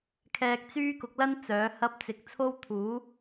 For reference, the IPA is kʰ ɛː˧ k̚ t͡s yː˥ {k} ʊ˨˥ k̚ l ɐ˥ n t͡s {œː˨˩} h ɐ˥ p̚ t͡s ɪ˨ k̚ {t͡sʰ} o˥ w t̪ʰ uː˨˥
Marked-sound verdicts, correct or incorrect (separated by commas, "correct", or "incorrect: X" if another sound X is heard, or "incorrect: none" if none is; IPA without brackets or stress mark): correct, incorrect: œː˨˥, correct